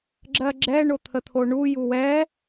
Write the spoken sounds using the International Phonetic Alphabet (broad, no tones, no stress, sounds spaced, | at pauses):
ɡ͡ǁ ɜ ɡ͡ǁ ɛ ɳ o t̪ʰ ə t̪ʰ o ɳ u j u w ɛ